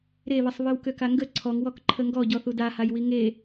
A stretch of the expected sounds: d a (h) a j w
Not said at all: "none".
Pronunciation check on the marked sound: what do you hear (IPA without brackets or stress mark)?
h